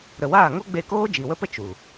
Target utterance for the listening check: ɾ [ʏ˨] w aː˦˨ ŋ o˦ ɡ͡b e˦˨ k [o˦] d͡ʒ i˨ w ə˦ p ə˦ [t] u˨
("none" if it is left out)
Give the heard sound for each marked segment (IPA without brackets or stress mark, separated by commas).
ə˨, oː˦, t͡ʃ